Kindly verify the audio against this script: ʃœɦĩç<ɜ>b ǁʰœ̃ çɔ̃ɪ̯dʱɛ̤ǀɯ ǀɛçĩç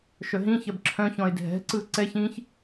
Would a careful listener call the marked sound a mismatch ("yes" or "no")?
no